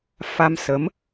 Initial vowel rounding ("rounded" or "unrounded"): unrounded